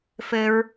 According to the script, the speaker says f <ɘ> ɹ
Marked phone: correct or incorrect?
correct